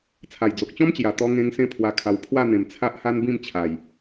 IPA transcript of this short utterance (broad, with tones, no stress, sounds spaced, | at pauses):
t͡sʰ a˨˩ j d͡z o˨ k̚ t͡ɕ ɔ̃˦ m t͡ɕ j a˨˩ t̪ ɔ˧ ŋ ẽ˧ ŋ s ẽ˧ pʰ w a˧ kʰ a˧ w pʰ w a˥˧ n̪ ẽ˨˩ m t͡sʰ a˦ ʔ h a˦ n b ĩ˥˧ m t͡ɕʰ a˨˩ j